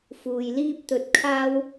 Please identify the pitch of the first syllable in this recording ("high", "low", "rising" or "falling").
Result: low